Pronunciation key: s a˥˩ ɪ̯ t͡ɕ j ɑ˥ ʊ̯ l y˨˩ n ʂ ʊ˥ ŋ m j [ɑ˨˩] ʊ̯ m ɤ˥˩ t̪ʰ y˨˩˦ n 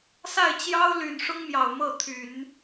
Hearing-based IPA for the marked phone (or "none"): ɑ˨˩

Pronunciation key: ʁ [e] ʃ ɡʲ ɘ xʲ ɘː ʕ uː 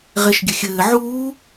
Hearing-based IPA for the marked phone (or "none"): e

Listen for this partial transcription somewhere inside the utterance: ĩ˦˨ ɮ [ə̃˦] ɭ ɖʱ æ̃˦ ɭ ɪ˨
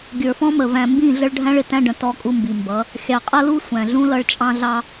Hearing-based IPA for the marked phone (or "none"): ə˦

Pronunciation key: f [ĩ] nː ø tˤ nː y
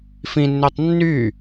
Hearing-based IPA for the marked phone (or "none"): ĩ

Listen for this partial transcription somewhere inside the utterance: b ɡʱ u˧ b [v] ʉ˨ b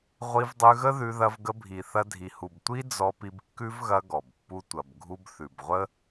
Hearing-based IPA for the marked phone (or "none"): θ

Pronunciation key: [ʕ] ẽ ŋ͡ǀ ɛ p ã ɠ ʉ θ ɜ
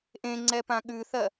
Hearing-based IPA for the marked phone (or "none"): ʔ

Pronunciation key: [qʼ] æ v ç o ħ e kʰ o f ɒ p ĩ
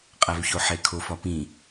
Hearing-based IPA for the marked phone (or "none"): qʼ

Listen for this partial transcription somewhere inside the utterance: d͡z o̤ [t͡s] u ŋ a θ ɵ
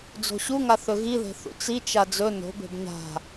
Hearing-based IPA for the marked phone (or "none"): ɕ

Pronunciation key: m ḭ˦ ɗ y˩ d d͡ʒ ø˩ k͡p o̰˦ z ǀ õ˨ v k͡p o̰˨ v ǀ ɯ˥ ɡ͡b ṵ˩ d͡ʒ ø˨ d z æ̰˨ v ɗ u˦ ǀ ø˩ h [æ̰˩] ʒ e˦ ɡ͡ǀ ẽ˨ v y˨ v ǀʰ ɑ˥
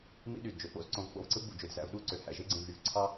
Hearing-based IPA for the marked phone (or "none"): æ̰˩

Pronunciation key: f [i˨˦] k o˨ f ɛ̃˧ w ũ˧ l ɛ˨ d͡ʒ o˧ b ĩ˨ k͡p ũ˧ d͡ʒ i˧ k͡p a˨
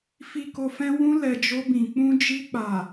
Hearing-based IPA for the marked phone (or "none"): i˨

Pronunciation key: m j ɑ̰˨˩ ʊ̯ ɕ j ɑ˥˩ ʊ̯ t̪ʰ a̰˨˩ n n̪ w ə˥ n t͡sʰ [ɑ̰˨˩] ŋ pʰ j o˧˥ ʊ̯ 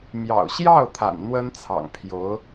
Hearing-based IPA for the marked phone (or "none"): ɑ̰˨˩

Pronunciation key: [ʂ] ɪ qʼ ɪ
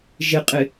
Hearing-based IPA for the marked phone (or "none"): ʒ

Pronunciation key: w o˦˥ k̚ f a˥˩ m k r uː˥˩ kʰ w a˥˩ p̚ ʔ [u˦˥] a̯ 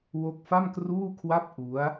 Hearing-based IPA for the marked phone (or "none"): u˦˥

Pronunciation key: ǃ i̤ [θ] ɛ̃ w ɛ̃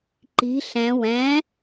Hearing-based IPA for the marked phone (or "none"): ɬ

